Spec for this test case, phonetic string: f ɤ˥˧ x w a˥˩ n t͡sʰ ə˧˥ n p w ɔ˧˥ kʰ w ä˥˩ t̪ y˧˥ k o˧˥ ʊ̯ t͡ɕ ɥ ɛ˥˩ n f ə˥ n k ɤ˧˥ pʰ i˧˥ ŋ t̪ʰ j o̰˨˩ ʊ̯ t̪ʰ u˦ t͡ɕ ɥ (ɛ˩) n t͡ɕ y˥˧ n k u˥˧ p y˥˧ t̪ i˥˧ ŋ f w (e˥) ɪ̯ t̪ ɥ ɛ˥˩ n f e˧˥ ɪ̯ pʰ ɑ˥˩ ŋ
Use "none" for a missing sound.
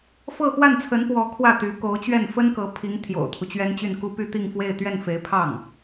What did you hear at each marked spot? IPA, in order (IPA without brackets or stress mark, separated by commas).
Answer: ɛ˥, e˥˧